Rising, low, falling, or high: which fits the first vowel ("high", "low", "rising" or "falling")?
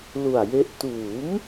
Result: low